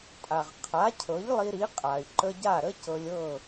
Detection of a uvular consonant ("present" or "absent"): present